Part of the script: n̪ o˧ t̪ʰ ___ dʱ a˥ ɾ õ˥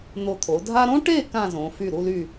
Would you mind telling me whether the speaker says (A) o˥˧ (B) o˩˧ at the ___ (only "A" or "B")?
B